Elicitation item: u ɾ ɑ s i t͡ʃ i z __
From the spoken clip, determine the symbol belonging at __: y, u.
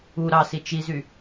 y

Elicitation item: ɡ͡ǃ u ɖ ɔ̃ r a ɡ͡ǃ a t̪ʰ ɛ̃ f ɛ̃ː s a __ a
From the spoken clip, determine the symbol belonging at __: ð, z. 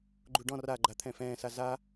z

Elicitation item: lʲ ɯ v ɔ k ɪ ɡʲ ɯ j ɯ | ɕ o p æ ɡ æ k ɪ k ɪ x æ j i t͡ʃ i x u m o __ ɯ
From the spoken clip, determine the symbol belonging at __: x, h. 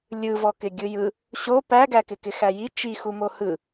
h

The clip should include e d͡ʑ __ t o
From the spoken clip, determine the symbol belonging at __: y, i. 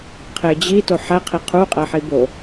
i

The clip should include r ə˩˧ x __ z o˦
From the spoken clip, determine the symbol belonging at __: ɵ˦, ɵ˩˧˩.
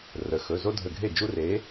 ɵ˩˧˩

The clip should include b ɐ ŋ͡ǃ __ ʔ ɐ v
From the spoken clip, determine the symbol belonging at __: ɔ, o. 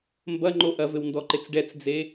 o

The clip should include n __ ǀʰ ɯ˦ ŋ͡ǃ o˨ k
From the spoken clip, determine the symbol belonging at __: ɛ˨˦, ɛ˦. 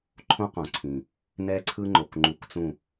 ɛ˦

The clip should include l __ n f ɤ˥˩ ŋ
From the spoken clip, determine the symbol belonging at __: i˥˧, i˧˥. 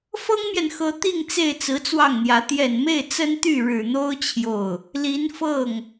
i˧˥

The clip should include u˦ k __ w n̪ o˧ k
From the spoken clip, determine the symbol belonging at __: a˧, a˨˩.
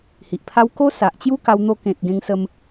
a˧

